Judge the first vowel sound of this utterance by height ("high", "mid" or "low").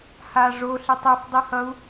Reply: low